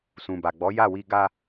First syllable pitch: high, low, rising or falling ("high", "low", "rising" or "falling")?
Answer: low